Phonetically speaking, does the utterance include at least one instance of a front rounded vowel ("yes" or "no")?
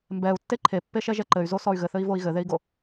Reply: yes